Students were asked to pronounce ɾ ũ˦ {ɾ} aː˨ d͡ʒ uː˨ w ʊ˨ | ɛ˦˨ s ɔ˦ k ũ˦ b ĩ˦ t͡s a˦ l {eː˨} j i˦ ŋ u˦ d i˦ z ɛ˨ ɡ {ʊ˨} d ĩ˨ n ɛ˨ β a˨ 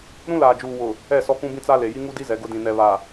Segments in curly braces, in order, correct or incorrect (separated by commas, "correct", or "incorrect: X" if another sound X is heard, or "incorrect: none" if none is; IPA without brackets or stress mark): incorrect: l, incorrect: e˨, incorrect: ʊ˦